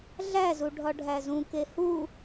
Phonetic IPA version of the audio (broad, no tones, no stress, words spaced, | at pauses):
ɮæzu ɖʱɒɖʱæzũke hu